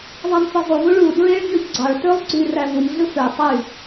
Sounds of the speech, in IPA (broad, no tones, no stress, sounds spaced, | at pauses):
ðˤ æ m f e zˤ u v u ɭ u d ɹ e ɭ ɲ ø ç ɡ͡ǀ ɑ ɭ t ø lˠ ɡ͡ǀ y r æ v u m ɮ ɯ f ø tˤ y